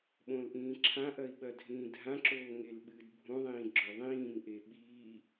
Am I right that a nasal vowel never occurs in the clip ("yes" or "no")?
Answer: no